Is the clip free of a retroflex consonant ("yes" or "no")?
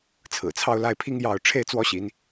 no